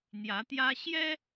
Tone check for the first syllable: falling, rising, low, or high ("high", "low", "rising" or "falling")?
rising